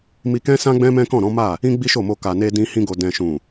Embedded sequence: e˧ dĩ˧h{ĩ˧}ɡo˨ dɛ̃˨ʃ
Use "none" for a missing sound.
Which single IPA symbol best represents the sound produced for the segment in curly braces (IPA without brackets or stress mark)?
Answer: ĩ˧